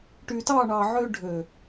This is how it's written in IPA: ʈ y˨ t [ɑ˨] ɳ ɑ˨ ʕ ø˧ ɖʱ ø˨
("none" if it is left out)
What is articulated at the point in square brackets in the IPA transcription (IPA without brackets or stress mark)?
ɑ˦˨